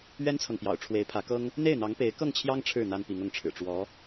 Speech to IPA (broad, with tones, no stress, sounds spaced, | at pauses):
ɥ ɛ˥ n t͡sʰ ɤ˨ ŋ p j ɑ̰˨˩ ʊ̯ ʈ͡ʂʰ w e˧˥ ɪ̯ pʰ ä˧˥ k ɤ˥ ŋ | n̪ e˥˩ ɪ̯ n̪ ɑ˧˥ ŋ p e˧˥ ɪ̯ k ɤ˥˩ ŋ t͡ɕʰ j ɑ˥ ŋ ʈ͡ʂʰ ɻ̩˥˩ n̪ a˥ n p i˧˥ ŋ ʊ˧˥ ŋ ʈ͡ʂʰ ɻ̩˨˩ ʈ͡ʂ w ɔ˧˥